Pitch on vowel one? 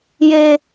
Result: high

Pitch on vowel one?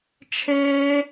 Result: high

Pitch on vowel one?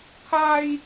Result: high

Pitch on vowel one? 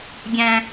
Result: high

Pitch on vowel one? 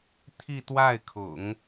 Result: falling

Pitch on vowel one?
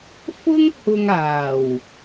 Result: high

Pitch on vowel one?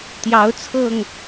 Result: rising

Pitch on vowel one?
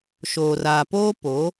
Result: low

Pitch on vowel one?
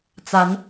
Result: rising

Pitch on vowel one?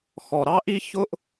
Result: low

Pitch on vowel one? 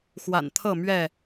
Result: low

